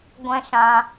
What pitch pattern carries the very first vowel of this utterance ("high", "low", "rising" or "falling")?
high